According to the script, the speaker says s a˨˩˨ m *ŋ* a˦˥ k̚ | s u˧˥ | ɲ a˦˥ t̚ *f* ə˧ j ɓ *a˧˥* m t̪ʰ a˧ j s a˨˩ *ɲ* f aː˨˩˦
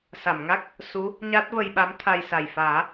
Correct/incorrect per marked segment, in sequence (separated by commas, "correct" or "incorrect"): correct, incorrect, correct, incorrect